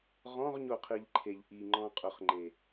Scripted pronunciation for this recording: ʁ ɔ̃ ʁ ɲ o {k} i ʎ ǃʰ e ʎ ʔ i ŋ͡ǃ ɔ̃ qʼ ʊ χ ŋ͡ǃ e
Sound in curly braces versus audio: incorrect: qʰ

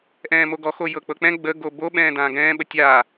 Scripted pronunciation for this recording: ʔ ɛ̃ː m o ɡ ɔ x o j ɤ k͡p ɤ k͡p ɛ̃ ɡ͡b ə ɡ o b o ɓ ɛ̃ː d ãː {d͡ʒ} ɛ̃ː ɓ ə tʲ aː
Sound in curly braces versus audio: incorrect: ɡ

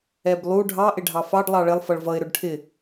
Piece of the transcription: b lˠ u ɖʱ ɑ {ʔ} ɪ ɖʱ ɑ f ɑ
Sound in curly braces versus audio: correct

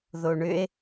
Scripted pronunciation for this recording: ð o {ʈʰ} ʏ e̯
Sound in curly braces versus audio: incorrect: ɳ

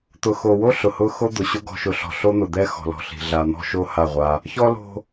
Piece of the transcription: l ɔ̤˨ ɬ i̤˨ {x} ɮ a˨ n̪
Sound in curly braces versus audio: incorrect: none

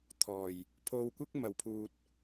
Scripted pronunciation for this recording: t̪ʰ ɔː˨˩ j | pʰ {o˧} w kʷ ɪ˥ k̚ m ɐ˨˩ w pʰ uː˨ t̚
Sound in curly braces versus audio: correct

